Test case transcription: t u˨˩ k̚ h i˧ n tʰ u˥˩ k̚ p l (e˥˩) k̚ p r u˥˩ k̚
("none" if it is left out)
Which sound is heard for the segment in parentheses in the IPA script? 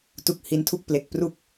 e˨˩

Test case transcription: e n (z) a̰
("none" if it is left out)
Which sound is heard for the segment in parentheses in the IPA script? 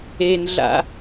ɮ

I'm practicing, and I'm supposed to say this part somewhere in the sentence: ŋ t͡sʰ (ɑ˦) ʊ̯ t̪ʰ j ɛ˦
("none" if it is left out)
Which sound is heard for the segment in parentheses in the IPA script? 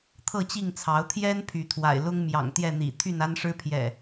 ɑ˨˦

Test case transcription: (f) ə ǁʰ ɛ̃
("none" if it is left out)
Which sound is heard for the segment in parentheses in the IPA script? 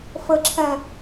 f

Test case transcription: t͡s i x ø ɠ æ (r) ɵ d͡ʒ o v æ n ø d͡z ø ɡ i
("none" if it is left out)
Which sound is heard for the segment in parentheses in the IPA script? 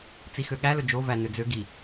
l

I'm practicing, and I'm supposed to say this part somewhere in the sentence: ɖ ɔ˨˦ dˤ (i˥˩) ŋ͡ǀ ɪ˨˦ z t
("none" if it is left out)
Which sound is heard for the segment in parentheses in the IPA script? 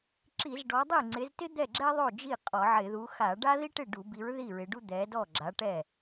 i˥˩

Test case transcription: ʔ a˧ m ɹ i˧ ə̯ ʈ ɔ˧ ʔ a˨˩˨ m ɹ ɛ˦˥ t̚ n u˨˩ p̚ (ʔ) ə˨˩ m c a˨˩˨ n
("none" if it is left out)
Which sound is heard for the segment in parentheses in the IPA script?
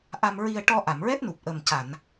ʔ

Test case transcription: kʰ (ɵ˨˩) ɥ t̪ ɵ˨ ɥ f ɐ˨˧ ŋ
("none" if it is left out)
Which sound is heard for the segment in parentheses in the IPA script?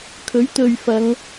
ɵ˨˥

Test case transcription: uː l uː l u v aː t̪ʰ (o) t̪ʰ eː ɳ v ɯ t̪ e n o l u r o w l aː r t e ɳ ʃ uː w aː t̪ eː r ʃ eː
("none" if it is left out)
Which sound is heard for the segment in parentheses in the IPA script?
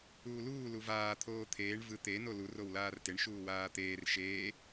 oː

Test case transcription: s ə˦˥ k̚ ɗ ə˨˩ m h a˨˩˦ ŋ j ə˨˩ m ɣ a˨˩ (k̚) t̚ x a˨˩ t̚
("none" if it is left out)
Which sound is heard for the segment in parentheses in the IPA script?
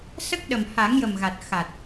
none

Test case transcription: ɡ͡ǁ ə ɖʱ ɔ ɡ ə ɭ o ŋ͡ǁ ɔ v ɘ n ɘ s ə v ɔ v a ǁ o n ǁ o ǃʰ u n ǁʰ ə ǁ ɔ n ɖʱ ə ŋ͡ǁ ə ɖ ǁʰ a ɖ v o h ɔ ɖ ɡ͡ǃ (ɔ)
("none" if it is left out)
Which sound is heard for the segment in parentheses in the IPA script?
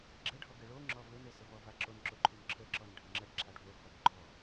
ɔ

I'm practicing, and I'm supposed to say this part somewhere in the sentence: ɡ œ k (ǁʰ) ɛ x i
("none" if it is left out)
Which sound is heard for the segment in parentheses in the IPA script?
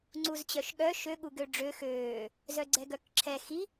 ǁʰ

